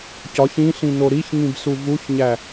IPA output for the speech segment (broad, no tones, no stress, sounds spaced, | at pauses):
c ɒ ç ĩ ɬ ĩ n o ɾ i ç ŋ ĩ b s u v u ç ɲ æ